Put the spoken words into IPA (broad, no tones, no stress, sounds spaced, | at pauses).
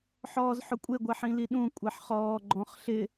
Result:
ħ ɔː z ħ ʊ kʷʼ e ɡʷ ɛ ħ ĩ l i ɗ ũ kʷʼ ɛ ħ χ ɔː ɡ͡ǃ ɔ̃ χ ɬ ɪ